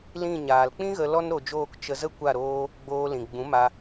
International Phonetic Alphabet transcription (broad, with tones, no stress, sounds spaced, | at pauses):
l ĩ˦˨ ɲ aː˨ l k͡p ĩ˦ ɣ ə˧ l ɔ˦ n ɾ o˧ d͡ʒ oː˦˨ k t͡ʃ ə˧ z ə˦ kʷ a˦˨ ɾ oː˦ | ɡ͡b oː˧ l ĩ˨ ɡ͡b ũ˨˦ m a˧